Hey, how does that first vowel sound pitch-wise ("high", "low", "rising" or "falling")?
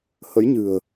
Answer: rising